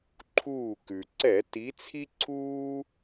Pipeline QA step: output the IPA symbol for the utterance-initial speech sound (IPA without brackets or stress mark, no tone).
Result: ǃʰ